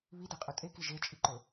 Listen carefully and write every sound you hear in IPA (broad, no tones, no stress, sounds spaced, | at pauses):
β i d ɛ qʼ ɵ tʼ e k i ʒ e t͡ʃʼ i ǃ ɵ